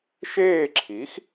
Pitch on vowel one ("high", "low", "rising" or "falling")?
falling